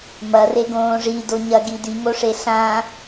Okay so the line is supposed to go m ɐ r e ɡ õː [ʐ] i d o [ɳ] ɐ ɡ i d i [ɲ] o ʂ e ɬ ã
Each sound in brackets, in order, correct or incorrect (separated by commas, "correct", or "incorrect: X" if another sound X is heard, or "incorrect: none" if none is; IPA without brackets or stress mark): correct, incorrect: ɲ, incorrect: ŋ